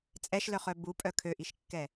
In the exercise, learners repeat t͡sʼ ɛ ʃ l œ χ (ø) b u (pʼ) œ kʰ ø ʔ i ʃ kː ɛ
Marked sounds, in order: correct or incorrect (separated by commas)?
incorrect, correct